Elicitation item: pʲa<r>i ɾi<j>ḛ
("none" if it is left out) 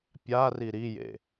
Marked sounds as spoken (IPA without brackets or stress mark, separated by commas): r, j